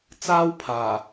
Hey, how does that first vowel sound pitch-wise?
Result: high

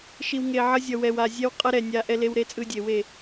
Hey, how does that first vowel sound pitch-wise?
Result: low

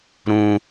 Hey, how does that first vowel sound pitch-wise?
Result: low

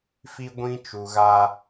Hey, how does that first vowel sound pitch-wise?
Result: high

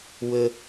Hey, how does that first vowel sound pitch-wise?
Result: low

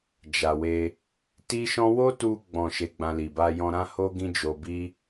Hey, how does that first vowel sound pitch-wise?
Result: low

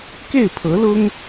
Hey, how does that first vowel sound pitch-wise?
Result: falling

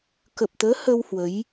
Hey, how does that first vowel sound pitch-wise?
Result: low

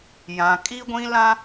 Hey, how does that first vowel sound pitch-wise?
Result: low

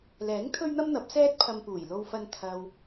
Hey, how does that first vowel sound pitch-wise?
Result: rising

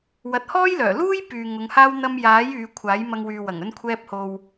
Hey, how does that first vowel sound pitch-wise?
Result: rising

